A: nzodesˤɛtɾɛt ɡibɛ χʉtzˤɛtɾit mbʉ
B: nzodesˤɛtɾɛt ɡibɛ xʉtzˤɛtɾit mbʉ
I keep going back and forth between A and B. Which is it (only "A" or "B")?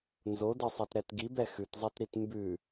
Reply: B